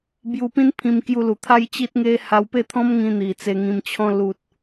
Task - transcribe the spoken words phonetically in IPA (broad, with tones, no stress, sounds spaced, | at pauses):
b j u˧ p ĩ˦ n pʰ ĩ˧ m k j u˧ l u˨˩ t̪ʰ a˦ j t͡ɕ i˦ t̚ ŋ e˦ h a˧ w p e˥˧ t̪ʰ ɔ̃˦ m ŋ ĩ˧ n̪ i˨˩ t͡s e˧ ŋ ĩ˧ m t͡ɕʰ ɔ̃˧ l u˨ t̚